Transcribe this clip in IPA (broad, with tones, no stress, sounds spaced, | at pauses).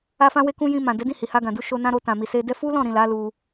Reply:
a˧ f ã˧ w e˧ k ũ˧ j ĩ˧ m ã˨ d ɛ˨˦ d ĩ˦˨ h i˨ h a˧ ɡ ã˨ d u˧ ʃ o˧ n ã˧ ɾ o˧ t ã˨ m i˨ s e˧ d ɛ˧ f u˦ l ɔ̃˦˨ ɾ ĩ˨ l a˨˦ l u˧